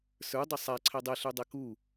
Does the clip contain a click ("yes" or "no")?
yes